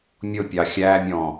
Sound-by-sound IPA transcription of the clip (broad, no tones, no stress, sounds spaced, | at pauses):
mʲ ʊ pʲ ɑ xʲ æ mʲ ɔ̃